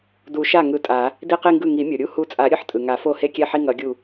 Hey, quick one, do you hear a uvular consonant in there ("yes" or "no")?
yes